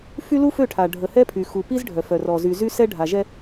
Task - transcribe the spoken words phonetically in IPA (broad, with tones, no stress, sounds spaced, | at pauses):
f y˦ l u˦ f ø˦˨ ʈʰ a˨ ɖʱ ə˨ h ɛ˦ pʰ y˨ x u˨ p i˦ z ɖʱ œ˨ f œ˨ r ɔ˨ z y˨ z y˦ s ɛ˦ ɖʱ a˨ ʒ ɛ˦